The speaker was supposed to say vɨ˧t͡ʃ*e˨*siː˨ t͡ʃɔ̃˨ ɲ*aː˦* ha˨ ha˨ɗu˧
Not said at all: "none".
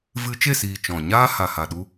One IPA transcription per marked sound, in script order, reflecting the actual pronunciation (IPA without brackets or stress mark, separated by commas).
e˦˨, aː˦